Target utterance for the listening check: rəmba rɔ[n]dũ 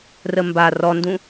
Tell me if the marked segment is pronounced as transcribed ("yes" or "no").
yes